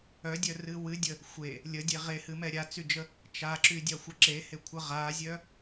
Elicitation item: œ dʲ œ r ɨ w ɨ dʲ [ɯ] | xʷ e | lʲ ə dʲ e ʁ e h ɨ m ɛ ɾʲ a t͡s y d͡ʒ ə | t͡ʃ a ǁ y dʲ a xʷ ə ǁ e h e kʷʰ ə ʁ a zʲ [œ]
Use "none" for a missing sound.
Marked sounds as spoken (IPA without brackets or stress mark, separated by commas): ə, œ